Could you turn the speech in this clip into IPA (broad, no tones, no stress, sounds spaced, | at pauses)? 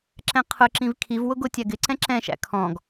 ǁ ɛ̃ qʰ ʊ ǁ ĩ v kʰ i v w ʊ ɡ ʊ tʲ æ ɡ ɪ ǀ ɛ̃ ǁ ɛ̃ ʃ æ̰ kʰ ɔ̃ ɡ